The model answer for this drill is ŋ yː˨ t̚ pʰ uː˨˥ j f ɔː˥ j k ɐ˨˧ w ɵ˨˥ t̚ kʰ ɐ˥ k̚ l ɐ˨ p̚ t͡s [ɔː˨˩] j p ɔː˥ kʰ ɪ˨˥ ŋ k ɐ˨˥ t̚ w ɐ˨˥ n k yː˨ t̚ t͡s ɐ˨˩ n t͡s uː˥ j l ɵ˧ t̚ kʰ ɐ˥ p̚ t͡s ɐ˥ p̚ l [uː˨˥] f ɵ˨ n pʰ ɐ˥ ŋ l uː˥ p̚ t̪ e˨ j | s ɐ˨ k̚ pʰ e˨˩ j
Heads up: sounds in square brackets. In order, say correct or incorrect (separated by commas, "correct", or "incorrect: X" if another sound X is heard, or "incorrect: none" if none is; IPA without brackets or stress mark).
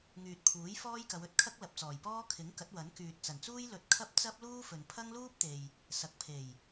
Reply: correct, incorrect: uː˥